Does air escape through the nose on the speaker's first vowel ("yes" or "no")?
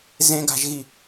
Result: yes